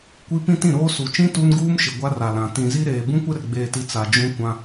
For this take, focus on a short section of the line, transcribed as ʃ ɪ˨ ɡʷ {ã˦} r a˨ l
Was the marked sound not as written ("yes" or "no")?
yes